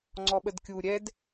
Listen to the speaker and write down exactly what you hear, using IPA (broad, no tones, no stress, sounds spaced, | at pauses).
ŋ͡ǀ ɔ ɓ ə d kʲ u ɾʲ ɛ d